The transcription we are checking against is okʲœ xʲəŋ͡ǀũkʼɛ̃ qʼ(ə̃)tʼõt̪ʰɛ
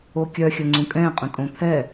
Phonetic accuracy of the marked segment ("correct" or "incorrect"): correct